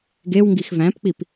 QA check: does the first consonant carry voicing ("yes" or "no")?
yes